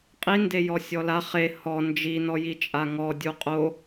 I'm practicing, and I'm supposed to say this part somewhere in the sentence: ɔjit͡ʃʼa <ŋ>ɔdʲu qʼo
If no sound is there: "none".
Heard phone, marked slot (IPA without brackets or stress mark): ŋ